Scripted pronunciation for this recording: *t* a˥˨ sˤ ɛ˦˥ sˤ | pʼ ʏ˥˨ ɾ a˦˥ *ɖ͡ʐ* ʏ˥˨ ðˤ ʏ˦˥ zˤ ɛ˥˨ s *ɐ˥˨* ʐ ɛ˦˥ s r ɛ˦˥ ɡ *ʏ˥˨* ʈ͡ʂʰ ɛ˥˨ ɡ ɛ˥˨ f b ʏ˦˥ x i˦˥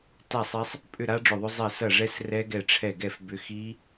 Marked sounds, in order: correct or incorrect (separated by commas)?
correct, correct, correct, incorrect